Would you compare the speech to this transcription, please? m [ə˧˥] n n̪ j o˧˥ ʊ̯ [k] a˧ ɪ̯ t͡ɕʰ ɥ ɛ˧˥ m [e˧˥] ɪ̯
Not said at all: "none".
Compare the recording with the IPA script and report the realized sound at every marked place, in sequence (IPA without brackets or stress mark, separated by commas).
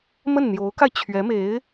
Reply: ə˥˩, k, e˧˥